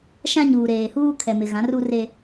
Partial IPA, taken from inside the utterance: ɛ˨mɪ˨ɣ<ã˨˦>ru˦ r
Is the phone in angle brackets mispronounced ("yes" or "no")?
no